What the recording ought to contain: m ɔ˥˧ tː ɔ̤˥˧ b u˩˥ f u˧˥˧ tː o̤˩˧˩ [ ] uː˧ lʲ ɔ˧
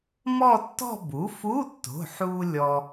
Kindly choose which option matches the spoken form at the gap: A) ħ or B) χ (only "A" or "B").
A